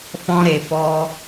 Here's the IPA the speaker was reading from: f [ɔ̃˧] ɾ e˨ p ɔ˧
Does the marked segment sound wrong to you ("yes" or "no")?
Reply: no